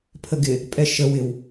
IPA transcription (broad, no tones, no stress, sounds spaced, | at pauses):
pʰ ə ɡ ɪ | pʼ ɛ ʃ ə w ɪ w